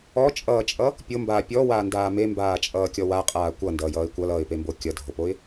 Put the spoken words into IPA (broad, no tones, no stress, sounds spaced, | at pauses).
ɔ t͡ʃʼ ʌː t͡ʃʼ ʌ | pʲ o m b aː pʲ ɔ w aː n d aː m e m b aː t͡ʃʼ ʌː kʲ ɔ w a qʼ aː kʷ ʌ n d ʌː j ʌː ɪ̯ kʷ ʌ l ʌː ɪ̯ p e m b o kʲ ʌ dʱ o p o ɪ̯